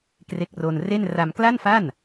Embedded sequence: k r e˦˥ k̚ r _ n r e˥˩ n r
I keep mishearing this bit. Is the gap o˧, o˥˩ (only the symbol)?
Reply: o˧